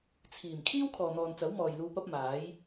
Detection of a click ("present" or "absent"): absent